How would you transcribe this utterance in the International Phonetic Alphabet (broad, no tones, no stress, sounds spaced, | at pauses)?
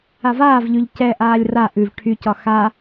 a v aː v ʎ y ʎ c ɛ ʔ aː lʲ r a ʔ ʉ v ʈʰ y c ɒ x a